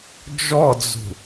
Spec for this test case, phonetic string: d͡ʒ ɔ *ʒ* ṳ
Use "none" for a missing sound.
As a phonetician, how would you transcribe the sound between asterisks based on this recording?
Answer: d͡z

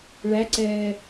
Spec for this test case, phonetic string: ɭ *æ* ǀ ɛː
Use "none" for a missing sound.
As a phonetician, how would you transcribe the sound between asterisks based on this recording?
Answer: æ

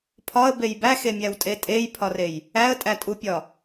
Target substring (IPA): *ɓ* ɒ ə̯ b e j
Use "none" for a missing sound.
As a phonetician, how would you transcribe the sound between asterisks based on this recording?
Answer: pʰ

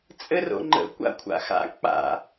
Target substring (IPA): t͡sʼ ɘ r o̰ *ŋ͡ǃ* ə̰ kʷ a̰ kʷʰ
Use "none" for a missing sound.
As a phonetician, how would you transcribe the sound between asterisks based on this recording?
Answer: ŋ͡ǃ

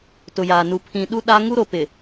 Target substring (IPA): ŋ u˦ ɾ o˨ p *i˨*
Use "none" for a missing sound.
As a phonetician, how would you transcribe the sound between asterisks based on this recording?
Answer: ɪ˨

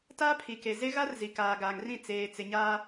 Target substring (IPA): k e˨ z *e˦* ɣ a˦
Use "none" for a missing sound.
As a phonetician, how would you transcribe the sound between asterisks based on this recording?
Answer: e˦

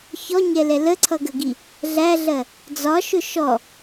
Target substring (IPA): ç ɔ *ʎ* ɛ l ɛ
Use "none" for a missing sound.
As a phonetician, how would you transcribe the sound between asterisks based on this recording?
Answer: ɲ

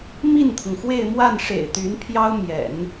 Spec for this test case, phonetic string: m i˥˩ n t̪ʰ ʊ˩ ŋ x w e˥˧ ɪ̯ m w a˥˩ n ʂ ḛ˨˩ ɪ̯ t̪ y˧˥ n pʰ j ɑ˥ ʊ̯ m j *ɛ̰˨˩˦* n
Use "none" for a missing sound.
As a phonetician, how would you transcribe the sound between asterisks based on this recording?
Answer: ɛ̰˨˩˦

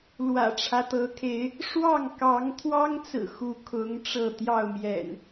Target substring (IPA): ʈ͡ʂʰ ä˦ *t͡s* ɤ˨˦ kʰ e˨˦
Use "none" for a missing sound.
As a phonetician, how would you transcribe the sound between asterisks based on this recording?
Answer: t̪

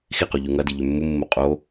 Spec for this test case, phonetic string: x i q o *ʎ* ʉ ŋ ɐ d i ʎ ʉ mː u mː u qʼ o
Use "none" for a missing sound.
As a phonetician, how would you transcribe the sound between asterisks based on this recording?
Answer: ʎ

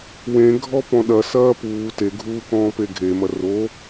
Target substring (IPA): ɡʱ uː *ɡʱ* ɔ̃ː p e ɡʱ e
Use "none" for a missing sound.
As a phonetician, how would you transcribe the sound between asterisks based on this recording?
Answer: k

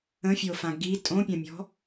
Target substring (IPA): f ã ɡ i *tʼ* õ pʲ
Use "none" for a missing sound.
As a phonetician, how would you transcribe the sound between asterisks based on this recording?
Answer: tʼ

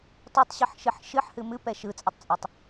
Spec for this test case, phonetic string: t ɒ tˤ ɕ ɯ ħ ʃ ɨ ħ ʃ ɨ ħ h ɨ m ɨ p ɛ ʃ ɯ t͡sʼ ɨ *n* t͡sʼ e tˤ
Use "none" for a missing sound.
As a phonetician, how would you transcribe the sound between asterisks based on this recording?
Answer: tˤ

